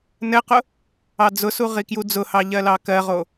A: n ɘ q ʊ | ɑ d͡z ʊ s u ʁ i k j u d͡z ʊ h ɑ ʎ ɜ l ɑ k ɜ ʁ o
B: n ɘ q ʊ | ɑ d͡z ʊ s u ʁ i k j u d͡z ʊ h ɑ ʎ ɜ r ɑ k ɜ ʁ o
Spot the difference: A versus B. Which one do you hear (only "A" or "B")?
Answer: A